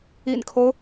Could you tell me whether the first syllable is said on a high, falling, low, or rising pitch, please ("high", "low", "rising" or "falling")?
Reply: low